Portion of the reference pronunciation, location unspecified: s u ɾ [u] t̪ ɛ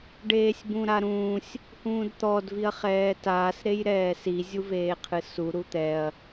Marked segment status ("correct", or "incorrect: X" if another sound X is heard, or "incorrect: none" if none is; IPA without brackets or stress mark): correct